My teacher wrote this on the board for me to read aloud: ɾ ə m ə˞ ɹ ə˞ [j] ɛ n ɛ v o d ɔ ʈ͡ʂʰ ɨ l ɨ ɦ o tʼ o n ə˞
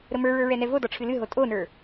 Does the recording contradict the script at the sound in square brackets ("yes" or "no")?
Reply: yes